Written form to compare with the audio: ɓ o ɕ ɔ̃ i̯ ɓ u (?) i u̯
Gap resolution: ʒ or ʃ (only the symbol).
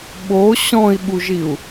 ʒ